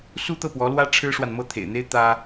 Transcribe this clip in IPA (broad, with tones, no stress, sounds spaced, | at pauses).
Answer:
s u˥ t̪ ɤ˥˩ p w ɔ˧˥ l w ä˥ ʈ͡ʂʰ ɻ̩˥ ʂ w a˨ n m ɤ˥˩ t̪ʰ ḛ˨˩ ɪ̯ n̪ e˥ ɪ̯ t̪ ä˥